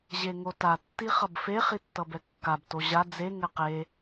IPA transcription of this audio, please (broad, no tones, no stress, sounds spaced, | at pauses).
ʑ e ŋ o t a tː i χ ʌ b f e χ i tː ʌ b ɛ kː a b t o ʑ a d͡z e ŋ ɛ q e